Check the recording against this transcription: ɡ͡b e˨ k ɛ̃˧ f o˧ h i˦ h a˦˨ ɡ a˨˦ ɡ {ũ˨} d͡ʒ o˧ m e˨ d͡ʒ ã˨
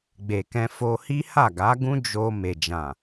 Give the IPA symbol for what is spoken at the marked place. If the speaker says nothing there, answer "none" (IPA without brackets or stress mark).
ũ˦